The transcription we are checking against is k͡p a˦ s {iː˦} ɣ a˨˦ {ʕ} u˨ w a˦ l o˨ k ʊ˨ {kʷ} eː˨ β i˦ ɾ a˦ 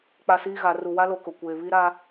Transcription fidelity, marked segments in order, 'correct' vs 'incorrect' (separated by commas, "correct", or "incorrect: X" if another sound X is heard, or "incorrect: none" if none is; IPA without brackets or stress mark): correct, incorrect: r, correct